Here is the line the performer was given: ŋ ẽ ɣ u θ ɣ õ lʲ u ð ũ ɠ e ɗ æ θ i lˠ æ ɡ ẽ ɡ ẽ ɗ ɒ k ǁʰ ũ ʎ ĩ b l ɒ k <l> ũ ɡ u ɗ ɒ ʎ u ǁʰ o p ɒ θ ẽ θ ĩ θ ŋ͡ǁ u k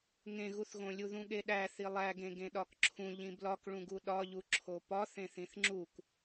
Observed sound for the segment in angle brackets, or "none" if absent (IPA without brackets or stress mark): ɭ